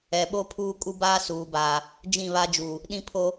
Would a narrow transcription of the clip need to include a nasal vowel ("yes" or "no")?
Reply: yes